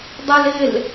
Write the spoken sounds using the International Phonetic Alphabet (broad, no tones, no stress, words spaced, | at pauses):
dˤɛlɪl